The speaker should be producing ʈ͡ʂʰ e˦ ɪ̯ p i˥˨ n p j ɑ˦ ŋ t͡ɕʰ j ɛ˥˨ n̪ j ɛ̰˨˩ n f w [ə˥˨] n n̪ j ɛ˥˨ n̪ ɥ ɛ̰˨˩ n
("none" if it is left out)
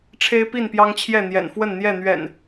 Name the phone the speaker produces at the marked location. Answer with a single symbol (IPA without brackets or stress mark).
ə˥˨